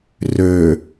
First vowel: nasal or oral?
oral